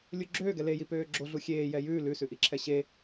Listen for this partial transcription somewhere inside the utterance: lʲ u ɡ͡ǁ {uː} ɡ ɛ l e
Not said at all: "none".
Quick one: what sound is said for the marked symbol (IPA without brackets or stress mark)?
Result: øː